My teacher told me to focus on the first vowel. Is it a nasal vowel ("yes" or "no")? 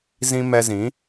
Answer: yes